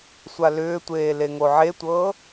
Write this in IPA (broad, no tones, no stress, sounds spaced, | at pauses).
sʷ a l ʏː tʷ eː l e ŋ o ʕ e tʷ ɤː